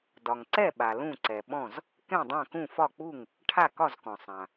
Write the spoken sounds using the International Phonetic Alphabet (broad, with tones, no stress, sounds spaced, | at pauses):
d ɒ˩ ŋ ǀ ɛ˥˩ ɓ a˩ l ũ˥˩ ǀ ɛ˩ ɓ ɔ̃˥˩ z | k ɛ̃˥˩ dˤ ã˥˩ k ũ˥˩ f ɒ˥˩ k͡p u˥˩ ŋ | ʈʰ a˥˩ k ɒ˥˩ z k ɔ̃˩ sˤ ã˩